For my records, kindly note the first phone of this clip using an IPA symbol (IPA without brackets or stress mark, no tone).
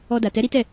ɔ